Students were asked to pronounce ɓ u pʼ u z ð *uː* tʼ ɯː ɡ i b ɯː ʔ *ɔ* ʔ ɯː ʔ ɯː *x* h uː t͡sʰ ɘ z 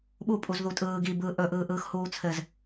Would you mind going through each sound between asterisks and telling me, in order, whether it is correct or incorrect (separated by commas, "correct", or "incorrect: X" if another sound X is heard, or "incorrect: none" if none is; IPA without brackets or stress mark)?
incorrect: u, incorrect: ɵ, correct